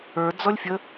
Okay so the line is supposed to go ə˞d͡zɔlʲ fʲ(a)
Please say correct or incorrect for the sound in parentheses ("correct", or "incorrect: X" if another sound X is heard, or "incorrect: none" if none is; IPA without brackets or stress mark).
incorrect: ə